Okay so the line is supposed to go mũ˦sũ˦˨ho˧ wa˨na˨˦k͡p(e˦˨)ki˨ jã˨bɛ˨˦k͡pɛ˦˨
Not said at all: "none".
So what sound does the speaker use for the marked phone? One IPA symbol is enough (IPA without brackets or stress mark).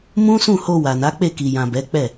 e˦˨